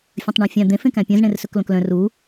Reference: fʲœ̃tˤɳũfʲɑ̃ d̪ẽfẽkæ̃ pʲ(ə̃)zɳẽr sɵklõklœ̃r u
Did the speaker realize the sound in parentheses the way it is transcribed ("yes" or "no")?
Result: no